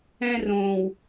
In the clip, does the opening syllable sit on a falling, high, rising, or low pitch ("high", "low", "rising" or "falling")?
high